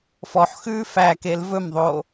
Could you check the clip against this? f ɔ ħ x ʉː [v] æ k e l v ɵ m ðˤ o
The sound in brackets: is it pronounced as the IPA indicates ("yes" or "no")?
no